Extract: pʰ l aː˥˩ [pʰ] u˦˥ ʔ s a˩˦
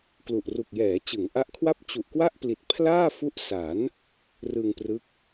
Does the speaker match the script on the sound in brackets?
no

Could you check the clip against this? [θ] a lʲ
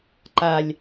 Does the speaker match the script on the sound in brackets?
no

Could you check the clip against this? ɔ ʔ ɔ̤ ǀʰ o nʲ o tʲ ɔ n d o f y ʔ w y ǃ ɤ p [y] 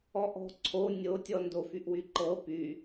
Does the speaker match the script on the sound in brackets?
yes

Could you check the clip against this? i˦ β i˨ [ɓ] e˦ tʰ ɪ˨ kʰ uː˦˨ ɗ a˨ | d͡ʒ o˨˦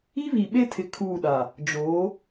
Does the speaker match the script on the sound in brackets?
yes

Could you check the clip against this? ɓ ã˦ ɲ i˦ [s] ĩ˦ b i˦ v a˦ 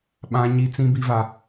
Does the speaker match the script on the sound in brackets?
no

